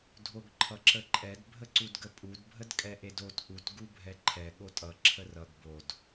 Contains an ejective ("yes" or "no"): yes